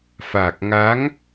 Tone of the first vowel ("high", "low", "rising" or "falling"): low